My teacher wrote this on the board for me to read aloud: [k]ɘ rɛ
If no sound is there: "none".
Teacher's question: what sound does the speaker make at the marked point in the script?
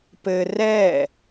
p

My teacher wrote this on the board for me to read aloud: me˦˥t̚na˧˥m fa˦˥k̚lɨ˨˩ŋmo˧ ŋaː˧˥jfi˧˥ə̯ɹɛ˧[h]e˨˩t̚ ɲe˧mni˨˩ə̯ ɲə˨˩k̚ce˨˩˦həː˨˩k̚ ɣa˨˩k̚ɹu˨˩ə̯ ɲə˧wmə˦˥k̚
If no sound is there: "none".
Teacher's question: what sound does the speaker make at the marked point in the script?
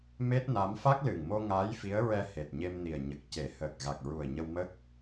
h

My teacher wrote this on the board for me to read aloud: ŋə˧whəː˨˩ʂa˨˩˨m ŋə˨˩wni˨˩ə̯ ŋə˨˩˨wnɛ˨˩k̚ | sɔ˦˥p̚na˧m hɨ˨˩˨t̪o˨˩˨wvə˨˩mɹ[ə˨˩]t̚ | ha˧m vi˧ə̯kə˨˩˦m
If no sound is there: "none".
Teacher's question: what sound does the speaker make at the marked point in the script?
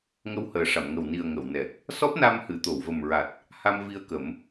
a˨˩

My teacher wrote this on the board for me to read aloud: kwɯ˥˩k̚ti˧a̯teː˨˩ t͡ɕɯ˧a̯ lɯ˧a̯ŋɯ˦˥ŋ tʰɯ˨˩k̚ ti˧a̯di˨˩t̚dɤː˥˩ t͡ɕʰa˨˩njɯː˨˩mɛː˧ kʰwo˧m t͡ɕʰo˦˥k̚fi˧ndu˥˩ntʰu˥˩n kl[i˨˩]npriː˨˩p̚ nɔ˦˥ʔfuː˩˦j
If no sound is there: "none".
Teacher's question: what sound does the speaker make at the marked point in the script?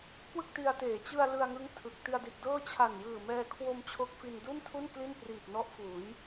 i˥˩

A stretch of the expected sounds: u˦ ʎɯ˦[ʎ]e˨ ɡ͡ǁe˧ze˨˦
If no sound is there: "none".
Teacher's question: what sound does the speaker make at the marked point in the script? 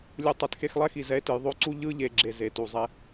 ʎ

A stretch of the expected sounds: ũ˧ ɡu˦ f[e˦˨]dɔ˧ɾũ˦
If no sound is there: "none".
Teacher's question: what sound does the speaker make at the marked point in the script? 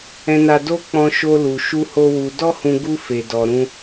e˧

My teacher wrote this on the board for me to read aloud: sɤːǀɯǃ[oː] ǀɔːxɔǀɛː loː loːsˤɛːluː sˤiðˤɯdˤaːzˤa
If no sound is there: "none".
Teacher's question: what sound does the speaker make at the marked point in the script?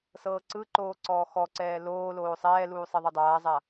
oː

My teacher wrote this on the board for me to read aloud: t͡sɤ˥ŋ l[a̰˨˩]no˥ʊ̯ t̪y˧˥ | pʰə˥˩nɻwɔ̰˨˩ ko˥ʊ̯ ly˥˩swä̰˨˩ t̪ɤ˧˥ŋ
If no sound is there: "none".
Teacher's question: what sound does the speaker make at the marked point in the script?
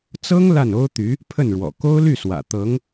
a˥˩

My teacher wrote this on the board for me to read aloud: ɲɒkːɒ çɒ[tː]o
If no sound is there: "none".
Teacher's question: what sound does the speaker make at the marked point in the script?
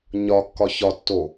tː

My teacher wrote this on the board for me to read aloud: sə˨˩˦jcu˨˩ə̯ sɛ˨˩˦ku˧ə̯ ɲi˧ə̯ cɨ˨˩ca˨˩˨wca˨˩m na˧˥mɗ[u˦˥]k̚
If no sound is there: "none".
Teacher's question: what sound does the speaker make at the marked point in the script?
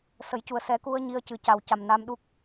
u˦˥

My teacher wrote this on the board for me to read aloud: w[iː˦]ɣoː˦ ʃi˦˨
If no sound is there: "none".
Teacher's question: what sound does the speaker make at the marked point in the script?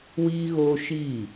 iː˦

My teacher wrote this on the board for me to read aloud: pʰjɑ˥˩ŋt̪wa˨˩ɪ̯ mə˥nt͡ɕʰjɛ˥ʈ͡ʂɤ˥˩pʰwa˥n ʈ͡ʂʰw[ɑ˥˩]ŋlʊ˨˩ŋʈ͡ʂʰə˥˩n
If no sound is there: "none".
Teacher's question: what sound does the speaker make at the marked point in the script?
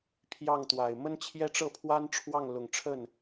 ɑ˥˩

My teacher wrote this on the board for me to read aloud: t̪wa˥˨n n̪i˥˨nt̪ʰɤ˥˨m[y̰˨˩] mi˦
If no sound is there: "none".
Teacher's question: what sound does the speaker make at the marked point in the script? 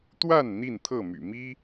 y̰˨˩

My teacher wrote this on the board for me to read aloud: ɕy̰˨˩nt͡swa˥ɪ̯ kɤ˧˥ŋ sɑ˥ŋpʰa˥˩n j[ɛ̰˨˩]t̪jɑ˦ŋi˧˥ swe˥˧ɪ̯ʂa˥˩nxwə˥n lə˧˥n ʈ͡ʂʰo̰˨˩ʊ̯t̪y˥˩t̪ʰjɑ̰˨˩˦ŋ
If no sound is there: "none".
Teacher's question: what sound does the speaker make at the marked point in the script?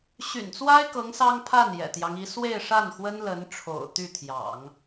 ɛ̰˨˩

